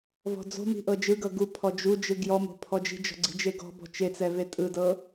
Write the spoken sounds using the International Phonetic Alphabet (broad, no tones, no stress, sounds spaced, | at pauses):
v ɔ̤ d͡z o̤ m i̤ ʔ ɤ d͡ʒ ɯ ɡ ɤ ɡ u pʰ ɔ d͡ʒ u d͡ʒ ɯ ɡ j ɔ m o̤ pʰ ɔ d͡ʒ i̤ d͡ʒ ɔ̤ ɡ͡ǀ i̤ d͡ʒ e ɡ ɔ̤ b ɔ̤ t͡ʃ e t͡s ɛ v e tʼ ɯ d ɤ